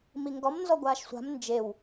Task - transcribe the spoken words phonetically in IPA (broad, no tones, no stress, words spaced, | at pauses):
miŋɡɔm nzɔɡʷaːʃsʷa̤m nd͡ʒew